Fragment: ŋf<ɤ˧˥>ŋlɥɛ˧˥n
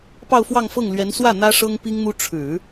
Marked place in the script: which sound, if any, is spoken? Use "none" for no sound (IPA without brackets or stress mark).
ɤ˥˩